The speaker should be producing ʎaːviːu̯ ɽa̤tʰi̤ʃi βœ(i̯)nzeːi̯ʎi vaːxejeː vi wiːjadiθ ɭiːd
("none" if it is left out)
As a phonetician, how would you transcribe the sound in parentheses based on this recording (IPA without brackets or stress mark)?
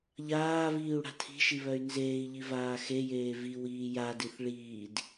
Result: y̯